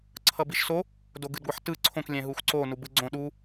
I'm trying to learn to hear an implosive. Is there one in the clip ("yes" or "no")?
yes